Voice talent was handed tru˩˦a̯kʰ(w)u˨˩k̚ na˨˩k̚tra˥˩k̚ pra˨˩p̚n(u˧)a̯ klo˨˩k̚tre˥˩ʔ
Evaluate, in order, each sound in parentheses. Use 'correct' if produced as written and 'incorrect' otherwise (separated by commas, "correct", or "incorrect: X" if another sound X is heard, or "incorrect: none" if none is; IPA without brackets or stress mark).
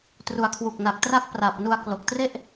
correct, correct